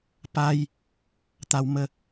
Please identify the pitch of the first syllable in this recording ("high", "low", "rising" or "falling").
high